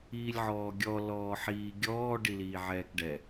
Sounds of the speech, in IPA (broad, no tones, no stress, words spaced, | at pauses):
iːlʲʕɔːɡʲɔ lɔːħiːɡʲɔː ɖiliːʕɛːkɖɛ